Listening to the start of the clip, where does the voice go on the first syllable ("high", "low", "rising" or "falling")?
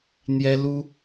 high